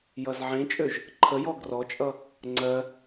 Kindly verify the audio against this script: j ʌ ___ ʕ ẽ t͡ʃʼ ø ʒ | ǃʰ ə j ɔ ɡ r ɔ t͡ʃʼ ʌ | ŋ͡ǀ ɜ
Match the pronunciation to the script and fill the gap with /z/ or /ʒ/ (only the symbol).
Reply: z